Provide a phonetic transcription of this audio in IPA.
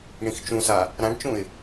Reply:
ɳ ĩ x t͡ʃ ũ s a | ɾ ã ɖ t͡ʃ ũ ɪ̯

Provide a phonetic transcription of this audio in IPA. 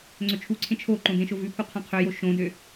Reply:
ŋ͡ǀ ø t͡ʃʰ u ǀʰ ẽ t͡ʃʰ o ǃ õ d ẽ ʃ o v ʉ pʰ u qʰ õ qʰ ø j o ʃ õ d ø

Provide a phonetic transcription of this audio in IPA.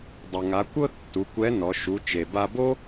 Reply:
dˤ o˩ ŋ a˩˧ kʷ ɤ˥ tː u˩˧ kʷ ɛ˧˥ n ɔ˩˧ ʃ u˩˧ t͡ʃ e˩ b a˧ b o˥

